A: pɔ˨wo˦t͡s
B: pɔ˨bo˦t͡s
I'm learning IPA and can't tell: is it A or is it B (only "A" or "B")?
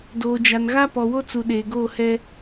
A